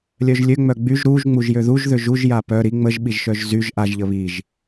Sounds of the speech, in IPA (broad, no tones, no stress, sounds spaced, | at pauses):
lʲ œ ʒ lʲ ø ŋ͡m œ ɡ͡b y ʒ ɾ u ʒ ŋ͡m u ʒ j ø ð u ʒ ð ø ʒ u ʒ j a p œ ɾ i ŋ͡m ə ʒ ɓ i ʒ ʃ œ ʒ z y ʒ ʔ a ʒ ʎ ə β i ʒ